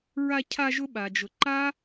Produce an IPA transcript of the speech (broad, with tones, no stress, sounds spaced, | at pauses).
ɹ a˧ cʰ a˧ ʒ ʊ˦ ɓ a˨ d͡ʒ ʊ˨ ǃ a˦